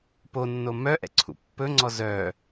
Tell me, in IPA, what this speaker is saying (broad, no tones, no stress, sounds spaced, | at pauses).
p o nː o m œ ʔ ɛ̰ ǀʰ ṵ pː ɵ ŋ͡ǀ ɔ z œ